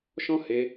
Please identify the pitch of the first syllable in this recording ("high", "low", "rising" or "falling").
high